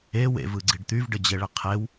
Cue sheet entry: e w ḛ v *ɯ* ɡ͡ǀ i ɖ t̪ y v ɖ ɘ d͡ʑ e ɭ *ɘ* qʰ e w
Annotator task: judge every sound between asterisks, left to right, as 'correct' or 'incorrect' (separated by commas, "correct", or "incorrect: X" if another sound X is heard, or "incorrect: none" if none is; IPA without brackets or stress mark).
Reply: correct, correct